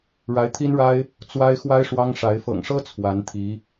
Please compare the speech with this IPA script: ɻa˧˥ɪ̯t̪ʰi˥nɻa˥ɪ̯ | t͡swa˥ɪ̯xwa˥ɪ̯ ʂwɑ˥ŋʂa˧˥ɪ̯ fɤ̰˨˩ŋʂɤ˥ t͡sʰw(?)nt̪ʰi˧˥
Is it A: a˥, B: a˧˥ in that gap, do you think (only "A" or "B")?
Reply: B